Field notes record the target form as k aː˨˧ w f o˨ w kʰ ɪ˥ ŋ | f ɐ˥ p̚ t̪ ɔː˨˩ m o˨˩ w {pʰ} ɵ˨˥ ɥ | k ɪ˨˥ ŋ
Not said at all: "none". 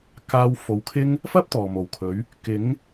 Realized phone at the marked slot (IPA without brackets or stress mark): kʰ